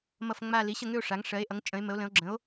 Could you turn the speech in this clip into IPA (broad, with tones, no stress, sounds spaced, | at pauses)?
m ʌ˦˨ f ŋ͡m a˦˨ l i˩˥ ɕ ə˦˨ ŋ ʏ˦˨ o̯ ʂ a˩˥ ŋ ʂ ɜ˩˥ e̯ ʔ ʌ˩˥ ŋ t͡ʃʼ ə̃˩˥ e̯ m ə˩˥ o̯ l ə̃˩˥ o̯ ɡ͡ǁ ə̃˩˥ o̯